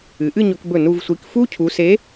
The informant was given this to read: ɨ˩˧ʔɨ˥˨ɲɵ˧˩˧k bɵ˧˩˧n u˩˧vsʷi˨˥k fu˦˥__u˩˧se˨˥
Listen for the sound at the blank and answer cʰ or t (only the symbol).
cʰ